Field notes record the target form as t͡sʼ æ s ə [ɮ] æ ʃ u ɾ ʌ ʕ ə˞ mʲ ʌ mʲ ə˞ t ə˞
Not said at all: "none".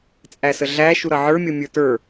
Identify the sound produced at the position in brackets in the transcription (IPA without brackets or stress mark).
ɮ